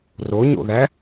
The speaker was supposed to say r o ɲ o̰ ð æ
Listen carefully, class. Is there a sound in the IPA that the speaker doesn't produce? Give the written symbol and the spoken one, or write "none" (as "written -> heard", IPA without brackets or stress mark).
none